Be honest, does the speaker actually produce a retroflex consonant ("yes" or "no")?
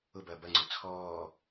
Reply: no